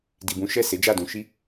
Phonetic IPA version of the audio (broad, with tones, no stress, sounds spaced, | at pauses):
d i˨ b ũ˨˦ ʃ ɛ˦˨ s e˨˦ d͡ʒ a˦˨ d ũ˧ ʃ i˦